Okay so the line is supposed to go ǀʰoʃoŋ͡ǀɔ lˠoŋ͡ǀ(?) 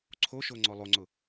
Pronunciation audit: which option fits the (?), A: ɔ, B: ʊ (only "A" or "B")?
B